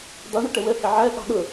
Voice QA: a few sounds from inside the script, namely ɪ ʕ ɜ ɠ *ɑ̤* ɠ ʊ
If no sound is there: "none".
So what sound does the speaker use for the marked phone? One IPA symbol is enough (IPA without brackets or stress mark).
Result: ɑ̤